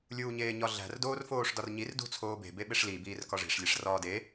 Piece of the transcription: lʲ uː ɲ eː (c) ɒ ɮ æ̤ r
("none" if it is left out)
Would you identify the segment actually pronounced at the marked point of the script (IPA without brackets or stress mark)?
ɲ